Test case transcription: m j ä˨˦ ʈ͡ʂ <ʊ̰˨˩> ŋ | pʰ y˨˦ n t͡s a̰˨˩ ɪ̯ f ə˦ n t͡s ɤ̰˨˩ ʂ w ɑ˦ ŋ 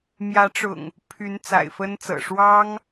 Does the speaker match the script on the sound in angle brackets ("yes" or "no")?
yes